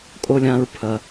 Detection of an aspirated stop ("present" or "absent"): present